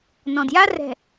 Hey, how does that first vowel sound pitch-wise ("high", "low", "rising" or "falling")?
low